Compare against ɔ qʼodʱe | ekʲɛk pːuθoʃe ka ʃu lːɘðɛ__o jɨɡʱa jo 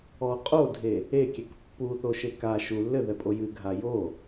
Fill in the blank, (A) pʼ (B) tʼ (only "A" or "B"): A